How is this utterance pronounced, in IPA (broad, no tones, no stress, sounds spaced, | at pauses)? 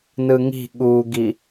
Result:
n ɯ ŋ i̤ ɠ u ɡ i